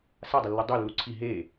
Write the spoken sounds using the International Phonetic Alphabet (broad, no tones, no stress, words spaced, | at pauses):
sadˤəlːu dˤølːu ǀʰi ɦe